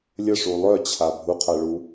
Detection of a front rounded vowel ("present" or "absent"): present